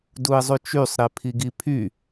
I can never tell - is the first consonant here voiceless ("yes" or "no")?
no